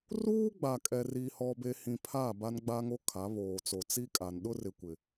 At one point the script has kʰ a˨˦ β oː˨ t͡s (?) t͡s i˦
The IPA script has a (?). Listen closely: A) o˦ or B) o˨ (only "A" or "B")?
B